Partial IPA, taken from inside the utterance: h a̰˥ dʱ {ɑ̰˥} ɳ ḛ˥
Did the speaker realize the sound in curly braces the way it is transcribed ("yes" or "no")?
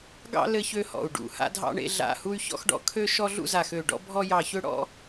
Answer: yes